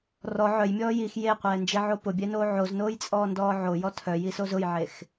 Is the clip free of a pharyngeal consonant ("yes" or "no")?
no